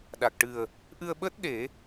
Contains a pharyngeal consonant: no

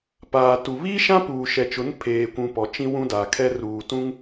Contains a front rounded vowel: no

